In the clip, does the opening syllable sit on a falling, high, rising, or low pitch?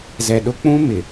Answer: low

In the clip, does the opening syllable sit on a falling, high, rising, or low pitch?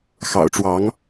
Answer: low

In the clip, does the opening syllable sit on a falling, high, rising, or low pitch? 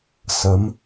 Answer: rising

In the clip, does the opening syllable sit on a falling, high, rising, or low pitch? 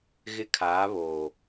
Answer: high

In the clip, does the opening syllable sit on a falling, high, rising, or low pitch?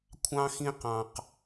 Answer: high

